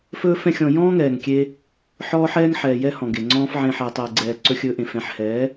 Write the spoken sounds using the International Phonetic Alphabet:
f ɵː˦ f ɛ̃˦ xʲ ɔ̃˧ j ɔ̃ː˦ ŋ ɛː˨ ŋ kʲ e˧ | ħ ɔː˦ ħ ɛː˦ ŋ ħ ɛː˨ j ɛ˦ h ɔ̃˨ ɡ e˨ ŋ͡ǀ ɔ̃ː˦ f ʕ ẽ˧ ħ ɛː˨ tˤ ɛː˨ ɡ͡ǀ ɛː˨ ǀ ɵ˧ xʲ ɵː˧ ʔ ẽ˨ f ɛ̃˨ ħ h ɛː˨˦

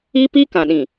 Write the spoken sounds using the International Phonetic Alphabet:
i˦ p i˦ k ã˨ ɗ ĩ˨

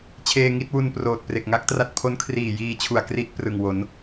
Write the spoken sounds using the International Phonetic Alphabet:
t͡ɕʰ eː˧ ŋ i˦˥ t̚ w u˧ n p r oː˨˩ t̚ p r e˨˩ k̚ ŋ a˦˥ k̚ t r a˦˥ t̚ pʰ o˦˥ n kʰ r iː˨˩ j iː˧ t͡ɕʰ u˨˩ a̯ k r i˦˥ ʔ p r ɯ˨˩ ŋ w o˩˦ n

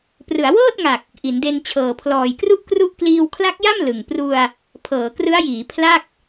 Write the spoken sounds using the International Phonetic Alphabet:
p r ɯ˩˦ a̯ w ɤː˥˩ t̚ ŋ a˨˩ k̚ | ʔ i˩˦ n d e˧ n t͡ɕʰ ɤː˨˩ pʰ l ɔː˨˩ j k r u˥˩ ʔ k r u˥˩ ʔ k l iː˧ w kʰ l a˦˥ k̚ j a˥˩ m l ɯ˨˩ ŋ p r u˧ a̯ | pʰ ɤː˩˦ k r ɯ˦˥ a̯ j iː˩˦ pʰ l a˥˩ k̚

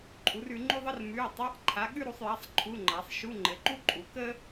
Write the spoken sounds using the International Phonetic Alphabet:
ǃʼ u˨˥ r ʉ˨˥ ŋ͡ǃ ʉ˥ ðˤ ə˥ r m ʉ˧˥˧ y̯ tˤ a˧˥˧ ʔ ǃʰ a˨˥ ɠ ʉ˥ ɾ u˨˥ sˤ j a˧˥˧ sˤ ǃʰ u˧˥˧ ŋ͡ǃ a˨˥ sˤ ʃ u˧˥˧ ŋ͡ǃ ɘ˨˥ ǃ u˥ ǃʼ u˨˥ k ə˥

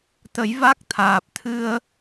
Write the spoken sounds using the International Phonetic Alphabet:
t̪ ə˨˩˦ j v a˦˥ k̚ t̪ʰ aː˨˩ p̚ t̪ʰ ɨ˧ ə̯

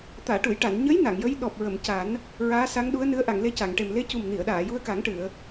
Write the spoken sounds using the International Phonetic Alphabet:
t̪ aː˨˩˨ ʈ u˨˩˨ j ʈ a˨˩˨ n ɲ ə˧˥ j n a˨˩˨ ŋ j ə˧˥ j ɗ ɔ˨˩ p̚ ɹ ə˨˩˨ m c a˨˩˦ n | ɹ aː˧˥ s a˧˥ ŋ ɗ u˧˥ ə̯ n ɨ˧˥ ə̯ ʔ a˨˩˨ ŋ l e˧ c a˨˩˨ ŋ ʈ e˨˩ m l e˧˥ c u˨˩ m n i˨˩˨ ə̯ ɗ aː˨˩˨ j u˧ ə̯ k a˨˩˦ ŋ ʈ ɨ˨˩˨ ə̯

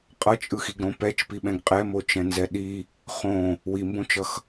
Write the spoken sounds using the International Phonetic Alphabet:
qʼ ʌ t͡ʃʼ ɯ x i ɡ ɾ õ p ɛ t͡ʃ p i ɓ ɛ̃ ɡ qʼ ɛ m o t͡ʃ ɛ̃ n z ɛ ɗ i | χ õ | w i m b õ t͡ʃ ʌ x

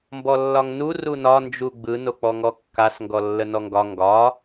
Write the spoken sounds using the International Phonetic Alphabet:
m b ɔ lː ɒ ŋ n u r u n ɒ n d͡ʒ u ɡ͡b ɯ n o k͡p ɔ ŋ ɔ kː a s ŋ ɡ ɔ lː ə n ɔ ŋ ɡ ɒ ŋ ɡ ɒ

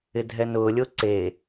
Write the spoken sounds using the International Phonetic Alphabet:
ɪ dʱ ɛ n ʊː lʲ ʊː ǀ e

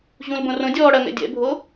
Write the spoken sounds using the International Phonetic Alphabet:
ʑ ũ l b õ r õ dʲ ɔː ɽ ɐ ŋ ɛ̰ dʲ ɛ̰ bʱ o

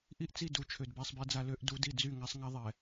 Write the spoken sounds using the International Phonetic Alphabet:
ʔ i˦˨ ʔ t͡s i˦˨ d u˨˦ t͡ʃʰ ø˨ d b a˦ sˤ b e˦ d͡z a˦ l ø˦ ʔ d u˨˦ d i˨ d͡z y˦˨ ŋ a˦ sˤ ŋ a˦ ðˤ ɛ˨

